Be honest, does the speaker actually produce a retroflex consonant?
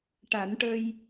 yes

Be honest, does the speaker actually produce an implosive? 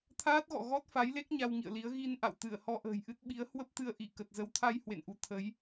yes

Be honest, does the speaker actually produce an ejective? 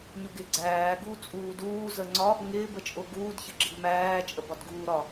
yes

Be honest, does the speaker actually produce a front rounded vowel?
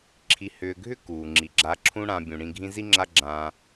yes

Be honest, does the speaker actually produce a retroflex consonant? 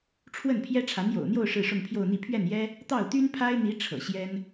yes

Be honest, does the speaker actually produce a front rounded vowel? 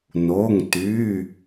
yes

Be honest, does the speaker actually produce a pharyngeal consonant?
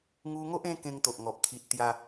no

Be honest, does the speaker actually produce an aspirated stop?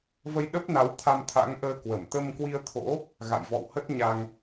yes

